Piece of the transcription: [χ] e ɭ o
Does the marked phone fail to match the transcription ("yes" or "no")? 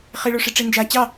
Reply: no